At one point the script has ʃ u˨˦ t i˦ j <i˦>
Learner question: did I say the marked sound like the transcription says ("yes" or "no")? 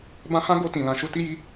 yes